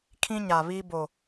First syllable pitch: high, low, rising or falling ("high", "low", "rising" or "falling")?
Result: high